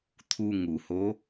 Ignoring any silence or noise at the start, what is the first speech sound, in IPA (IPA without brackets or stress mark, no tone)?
t̪ʰ